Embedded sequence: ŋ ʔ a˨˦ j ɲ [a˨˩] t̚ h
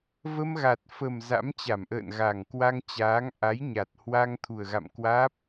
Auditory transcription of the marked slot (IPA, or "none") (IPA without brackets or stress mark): a˨˩